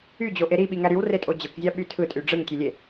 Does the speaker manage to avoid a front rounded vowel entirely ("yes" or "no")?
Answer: no